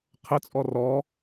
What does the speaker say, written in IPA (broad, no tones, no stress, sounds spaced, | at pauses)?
qʰ ə t͡sʼ ɔ r ɔ